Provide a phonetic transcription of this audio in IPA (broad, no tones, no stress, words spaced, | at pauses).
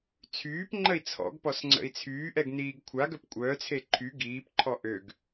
t͡sʰyːpŋ͡ǃəi̯ t͡sʰɔ̰ɡpɔsŋ͡ǀə̰i̯ t͡sʰyːʔɛɡniːɡ kʷʰaɡœp kʷʼœːt͡sʰe ǃʰy ɡiːpǃʰɔ ʔøɡ